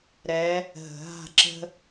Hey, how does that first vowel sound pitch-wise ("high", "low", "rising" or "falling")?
rising